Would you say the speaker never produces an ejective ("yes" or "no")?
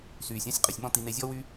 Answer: no